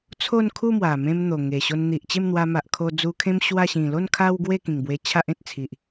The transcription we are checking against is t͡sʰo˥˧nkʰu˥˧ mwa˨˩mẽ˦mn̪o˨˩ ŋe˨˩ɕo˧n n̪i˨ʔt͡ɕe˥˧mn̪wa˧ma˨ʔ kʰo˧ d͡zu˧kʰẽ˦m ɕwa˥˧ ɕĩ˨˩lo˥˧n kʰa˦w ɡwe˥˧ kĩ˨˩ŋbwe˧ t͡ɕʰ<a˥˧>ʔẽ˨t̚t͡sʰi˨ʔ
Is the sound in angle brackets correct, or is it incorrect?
incorrect